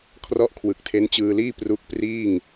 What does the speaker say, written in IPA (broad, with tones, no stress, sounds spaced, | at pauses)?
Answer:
kʰ r ɔ˥˩ ʔ kʰ w ɯ˨˩ k̚ tʰ e˦˥ n t͡ɕ ɯː˧ l iː˥˩ p r u˦˥ k̚ p r iː˥˩ ŋ